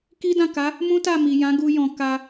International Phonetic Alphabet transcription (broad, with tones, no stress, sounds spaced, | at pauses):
k i˦ d ã˦˨ k a˨˦ | m ũ˦ t a˦˨ m i˨ j ã˨˦ ɡ u˧ j ɔ̃˨ k a˧